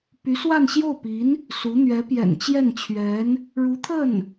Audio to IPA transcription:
p y˧˥ s w a˥˧ n ɕ j o˥˩ ʊ̯ p i˧˥ n | s u˧˥ n̪ ɥ ɛ˧˥ p j ɛ̰˨˩ n t͡ɕ j ɛ˥˩ n t͡ɕʰ ɥ ɛ˧˥ n | ɻ u˧˥ t̪ʰ ə˥˩ n

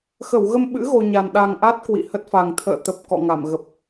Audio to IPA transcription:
x ə˧˩ w ɣ ə˧ m ɓ ɨ̰˧˥ ɣ o˧ ɲ a˨˩ n ɗ a˨˩ ŋ ʔ a˦˥ t̚ k w ḭ˧˨ h ə˦˥ t̚ f a˨˩ ŋ t̪ʰ ə̰ː˧˨ t̪ ə˨˩ p̚ k ɔ̰˧˨ ŋ a˧˩ m ɣ ə˨˩ p̚

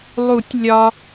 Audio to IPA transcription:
lˠ u˨˩˦ tʲ lʲ ɒ˨

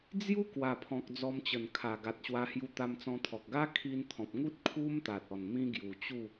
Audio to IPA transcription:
d͡z j u˦ k w a˨˩ pʰ ɔ̃˨ k̚ d͡z ɔ˧ m t͡ɕ ə˨˩ n kʰ a˨˩ ɡ a˨ t̚ ɕ w a˧ h j u˧ t̪ a˧ m t͡s ɔ̃˧ t̪ʰ ɔ˨ k̚ ɡ a˦ kʰ i˧ n t̪ʰ ɔ̃˨ p̚ ŋ u˦ t̚ kʰ u˦ m t̪ a˨ t̚ ɔ˨˩ n m ĩ˦ ɡ j u˨˩ t͡ɕ u˥˧

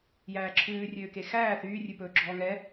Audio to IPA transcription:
j æː ǁʰ ʉː rʲ øː k e x æː θ yː rʲ ʉ p ɵː ɡ͡ǁ ɔː ŋ ɛ

